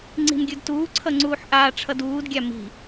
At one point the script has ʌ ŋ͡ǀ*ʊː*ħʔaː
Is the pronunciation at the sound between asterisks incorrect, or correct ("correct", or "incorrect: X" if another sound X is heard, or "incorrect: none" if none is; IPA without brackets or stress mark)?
incorrect: uː